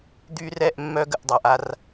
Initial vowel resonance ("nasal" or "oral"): oral